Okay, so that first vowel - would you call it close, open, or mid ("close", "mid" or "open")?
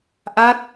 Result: open